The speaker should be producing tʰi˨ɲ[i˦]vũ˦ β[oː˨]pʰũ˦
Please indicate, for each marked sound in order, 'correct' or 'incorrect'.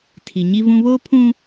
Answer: correct, incorrect: oː˦

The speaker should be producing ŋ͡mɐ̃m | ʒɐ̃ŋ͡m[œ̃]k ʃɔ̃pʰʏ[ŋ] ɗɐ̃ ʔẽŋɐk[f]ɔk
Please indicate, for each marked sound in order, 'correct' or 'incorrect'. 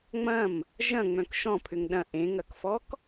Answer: correct, correct, correct

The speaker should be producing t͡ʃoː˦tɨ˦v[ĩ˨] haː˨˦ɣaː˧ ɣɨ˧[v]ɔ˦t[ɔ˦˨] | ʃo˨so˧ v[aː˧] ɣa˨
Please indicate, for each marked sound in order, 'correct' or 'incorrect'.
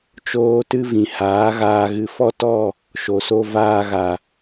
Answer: correct, incorrect: f, correct, correct

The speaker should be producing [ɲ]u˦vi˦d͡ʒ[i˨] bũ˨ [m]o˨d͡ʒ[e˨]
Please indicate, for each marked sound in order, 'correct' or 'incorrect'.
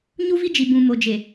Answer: correct, correct, correct, correct

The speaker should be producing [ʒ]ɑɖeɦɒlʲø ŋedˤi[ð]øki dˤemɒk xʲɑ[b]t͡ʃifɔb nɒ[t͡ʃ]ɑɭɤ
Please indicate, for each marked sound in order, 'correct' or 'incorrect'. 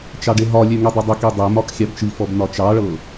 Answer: incorrect: t͡ʃ, incorrect: dˤ, correct, correct

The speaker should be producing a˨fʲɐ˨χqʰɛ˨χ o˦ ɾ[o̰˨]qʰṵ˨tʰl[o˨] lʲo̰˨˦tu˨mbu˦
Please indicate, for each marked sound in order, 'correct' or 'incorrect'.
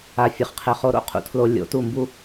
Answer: incorrect: o̰˦, correct

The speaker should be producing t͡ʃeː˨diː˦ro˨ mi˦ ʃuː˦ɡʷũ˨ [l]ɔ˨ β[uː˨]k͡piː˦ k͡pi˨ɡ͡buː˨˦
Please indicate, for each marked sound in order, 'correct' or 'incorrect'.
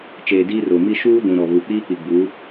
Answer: incorrect: ɾ, incorrect: u˨

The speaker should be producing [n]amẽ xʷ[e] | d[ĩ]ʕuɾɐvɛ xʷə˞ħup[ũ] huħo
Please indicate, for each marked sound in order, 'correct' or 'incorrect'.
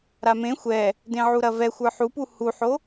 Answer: incorrect: ɾ, incorrect: ɛ, incorrect: ẽ, incorrect: u

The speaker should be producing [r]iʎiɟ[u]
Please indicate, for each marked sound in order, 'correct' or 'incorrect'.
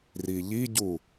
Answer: correct, correct

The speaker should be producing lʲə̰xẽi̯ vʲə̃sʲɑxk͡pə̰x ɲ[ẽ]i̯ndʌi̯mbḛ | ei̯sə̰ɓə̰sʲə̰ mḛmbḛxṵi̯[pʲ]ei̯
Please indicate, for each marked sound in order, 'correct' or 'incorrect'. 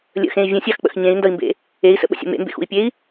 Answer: correct, correct

